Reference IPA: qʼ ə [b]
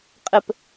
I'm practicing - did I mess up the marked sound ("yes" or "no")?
yes